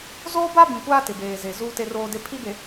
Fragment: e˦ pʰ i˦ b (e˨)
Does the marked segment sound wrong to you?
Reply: no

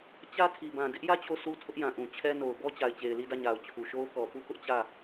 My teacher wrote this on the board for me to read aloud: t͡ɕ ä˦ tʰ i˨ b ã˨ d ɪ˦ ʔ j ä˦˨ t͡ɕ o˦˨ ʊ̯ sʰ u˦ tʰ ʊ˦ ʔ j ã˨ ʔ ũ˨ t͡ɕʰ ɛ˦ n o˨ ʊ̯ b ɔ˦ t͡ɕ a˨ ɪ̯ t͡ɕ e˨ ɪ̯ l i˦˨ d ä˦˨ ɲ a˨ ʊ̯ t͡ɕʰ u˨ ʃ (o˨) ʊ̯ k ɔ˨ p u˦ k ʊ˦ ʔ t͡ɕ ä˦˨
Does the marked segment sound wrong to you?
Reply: yes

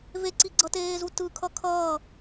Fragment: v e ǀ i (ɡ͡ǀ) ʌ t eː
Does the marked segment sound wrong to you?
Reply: no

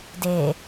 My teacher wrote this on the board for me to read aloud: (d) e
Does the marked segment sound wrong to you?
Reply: no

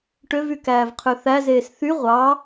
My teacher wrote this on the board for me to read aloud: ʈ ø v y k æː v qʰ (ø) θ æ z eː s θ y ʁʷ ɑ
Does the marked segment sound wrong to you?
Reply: no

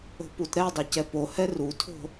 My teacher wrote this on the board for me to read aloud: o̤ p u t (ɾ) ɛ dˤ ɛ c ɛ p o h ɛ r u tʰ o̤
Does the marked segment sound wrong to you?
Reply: no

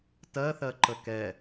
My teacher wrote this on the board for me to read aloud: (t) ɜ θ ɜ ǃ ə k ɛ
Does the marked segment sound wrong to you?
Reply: no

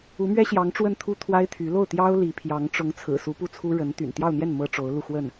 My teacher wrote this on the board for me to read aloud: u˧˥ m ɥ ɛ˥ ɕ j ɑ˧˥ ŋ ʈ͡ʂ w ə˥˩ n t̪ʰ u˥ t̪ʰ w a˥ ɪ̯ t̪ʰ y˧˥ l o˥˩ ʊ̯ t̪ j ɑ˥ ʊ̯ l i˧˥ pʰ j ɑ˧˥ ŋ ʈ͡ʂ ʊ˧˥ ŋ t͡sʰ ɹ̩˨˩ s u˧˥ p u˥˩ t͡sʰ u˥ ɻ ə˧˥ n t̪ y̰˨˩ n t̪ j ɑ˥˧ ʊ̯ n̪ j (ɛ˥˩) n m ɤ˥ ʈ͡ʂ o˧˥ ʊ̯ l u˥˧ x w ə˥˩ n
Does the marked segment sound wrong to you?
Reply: no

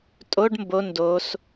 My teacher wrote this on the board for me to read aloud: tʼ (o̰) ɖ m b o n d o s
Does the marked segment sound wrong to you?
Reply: yes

